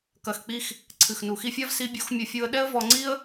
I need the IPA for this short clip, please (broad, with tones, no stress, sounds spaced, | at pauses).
k ɐ˧ x k͡p i˦ x | ǀʰ ɨ˨ x n u˨ x i˧ fʲ a˦ v s i˦ bʲ o˦ x mʲ ɘ˧ fʲ u˧ ə̯ ɗ ɛ˦ ə̯ v ɔ˧ ŋ͡ǀ i˦ ə̯